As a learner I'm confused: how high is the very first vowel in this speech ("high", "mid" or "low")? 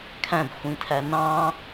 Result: low